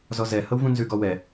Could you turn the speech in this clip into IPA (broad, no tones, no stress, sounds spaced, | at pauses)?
z ɔ z ɛ h ɤ w v ũ n z ʉ ɡ ɔ w ɛ